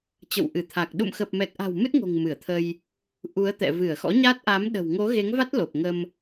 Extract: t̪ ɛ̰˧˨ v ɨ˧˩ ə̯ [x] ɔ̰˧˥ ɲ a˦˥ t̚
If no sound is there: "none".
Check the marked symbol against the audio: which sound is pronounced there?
x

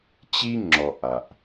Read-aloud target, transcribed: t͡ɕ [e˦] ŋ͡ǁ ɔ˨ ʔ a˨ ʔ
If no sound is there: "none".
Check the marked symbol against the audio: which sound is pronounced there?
i˦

